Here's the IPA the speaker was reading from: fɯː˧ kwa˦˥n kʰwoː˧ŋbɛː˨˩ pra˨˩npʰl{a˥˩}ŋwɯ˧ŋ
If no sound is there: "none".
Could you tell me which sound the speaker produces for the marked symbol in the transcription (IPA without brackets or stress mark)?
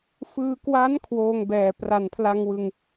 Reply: a˧